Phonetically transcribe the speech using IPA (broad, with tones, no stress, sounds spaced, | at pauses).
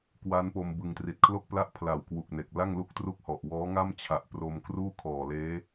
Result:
k w a˦˥ n p o˧ m b ɯ˧ ŋ t r i˨˩ t̚ kʰ l o˥˩ k̚ p l a˥˩ ʔ pʰ l a˨˩ w k w u˨˩ k̚ n e˨˩ k̚ l a˥˩ ŋ l u˥˩ k̚ t r u˥˩ k̚ h ɔ˨˩ ʔ w ɔː˦˥ ŋ a˥˩ m t͡ɕʰ a˨˩ ʔ p r o˧ m k r uː˥˩ kʰ ɔː˨˩ l eː˦˥